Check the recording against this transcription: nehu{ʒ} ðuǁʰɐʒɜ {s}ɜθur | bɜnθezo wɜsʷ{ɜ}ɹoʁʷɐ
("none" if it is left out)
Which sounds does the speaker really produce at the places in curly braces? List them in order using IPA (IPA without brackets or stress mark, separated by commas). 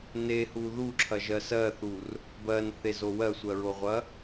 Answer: none, s, ɜ